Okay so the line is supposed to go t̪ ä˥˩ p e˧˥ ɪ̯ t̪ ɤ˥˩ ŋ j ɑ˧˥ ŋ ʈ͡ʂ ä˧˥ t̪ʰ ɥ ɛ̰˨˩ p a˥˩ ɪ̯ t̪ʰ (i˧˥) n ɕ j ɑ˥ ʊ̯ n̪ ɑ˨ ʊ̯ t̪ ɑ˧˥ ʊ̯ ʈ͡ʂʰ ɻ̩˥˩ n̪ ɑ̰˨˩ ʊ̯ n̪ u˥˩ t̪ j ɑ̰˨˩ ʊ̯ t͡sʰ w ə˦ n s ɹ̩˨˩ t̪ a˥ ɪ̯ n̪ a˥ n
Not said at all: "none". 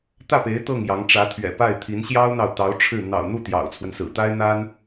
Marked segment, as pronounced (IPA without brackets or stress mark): i˧˥